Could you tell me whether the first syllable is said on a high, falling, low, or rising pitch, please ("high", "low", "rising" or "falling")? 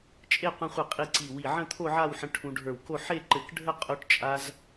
falling